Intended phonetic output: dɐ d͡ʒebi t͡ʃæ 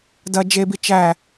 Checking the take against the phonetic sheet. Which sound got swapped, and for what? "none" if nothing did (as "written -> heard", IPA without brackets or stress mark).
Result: none